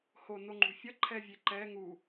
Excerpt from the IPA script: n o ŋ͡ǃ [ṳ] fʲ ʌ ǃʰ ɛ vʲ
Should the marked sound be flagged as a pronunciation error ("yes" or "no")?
no